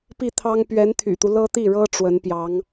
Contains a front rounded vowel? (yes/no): yes